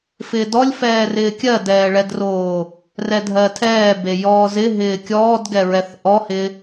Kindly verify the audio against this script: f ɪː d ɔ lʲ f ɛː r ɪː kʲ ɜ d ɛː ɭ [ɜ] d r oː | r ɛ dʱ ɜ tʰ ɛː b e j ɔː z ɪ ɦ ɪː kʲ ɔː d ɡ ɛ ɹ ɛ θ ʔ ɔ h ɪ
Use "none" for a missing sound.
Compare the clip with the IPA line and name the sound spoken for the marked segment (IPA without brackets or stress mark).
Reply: ɛ